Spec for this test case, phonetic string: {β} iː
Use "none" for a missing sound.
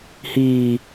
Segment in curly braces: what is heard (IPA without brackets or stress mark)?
h